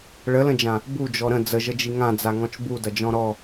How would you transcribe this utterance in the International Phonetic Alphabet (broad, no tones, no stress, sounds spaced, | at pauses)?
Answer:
ɭ ə l ə̃ d͡ʒ ã | b u d͡ʒ ɔ ɾ ə̃ d͡z ə ʒ ə d͡ʒ i ŋ ã d͡z a ŋ ɔ̃ t͡ʃ b u d ɐ d͡ʒ ɔ̃ ɾ ɔ